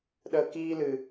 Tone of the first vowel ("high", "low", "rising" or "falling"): low